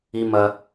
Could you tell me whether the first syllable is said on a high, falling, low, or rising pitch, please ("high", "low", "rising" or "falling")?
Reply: low